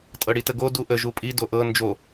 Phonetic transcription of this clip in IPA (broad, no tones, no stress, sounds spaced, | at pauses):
tʼ ɤ ɽ i t ə ɡ o d u ʔ ə ʒ u pʼ i d o ʔ ɤ n d͡ʒ o